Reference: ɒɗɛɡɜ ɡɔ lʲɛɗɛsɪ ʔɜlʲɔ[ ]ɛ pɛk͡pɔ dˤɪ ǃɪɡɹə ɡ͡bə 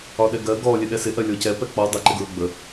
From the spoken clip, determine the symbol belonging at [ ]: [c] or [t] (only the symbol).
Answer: c